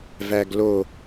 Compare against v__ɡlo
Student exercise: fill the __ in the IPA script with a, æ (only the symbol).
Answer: æ